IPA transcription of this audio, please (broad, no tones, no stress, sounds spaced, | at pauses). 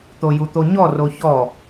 t̪ o j u t̪ o ɲ ɔ r o ç ɔ